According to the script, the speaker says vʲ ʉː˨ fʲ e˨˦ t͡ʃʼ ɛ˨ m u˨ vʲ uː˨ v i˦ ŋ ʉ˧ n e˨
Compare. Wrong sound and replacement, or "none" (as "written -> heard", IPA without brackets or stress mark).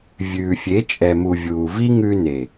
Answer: none